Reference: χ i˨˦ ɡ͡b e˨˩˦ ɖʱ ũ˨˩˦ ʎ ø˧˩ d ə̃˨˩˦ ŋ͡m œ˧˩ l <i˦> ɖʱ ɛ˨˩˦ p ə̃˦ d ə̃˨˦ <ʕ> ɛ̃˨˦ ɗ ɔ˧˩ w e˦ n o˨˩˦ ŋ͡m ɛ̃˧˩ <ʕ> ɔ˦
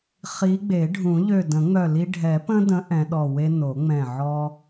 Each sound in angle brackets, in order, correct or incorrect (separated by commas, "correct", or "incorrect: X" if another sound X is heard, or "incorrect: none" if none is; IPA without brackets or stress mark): correct, incorrect: ʔ, correct